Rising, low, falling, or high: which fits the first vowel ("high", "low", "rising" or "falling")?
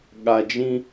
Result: low